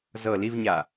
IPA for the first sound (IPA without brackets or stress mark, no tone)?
z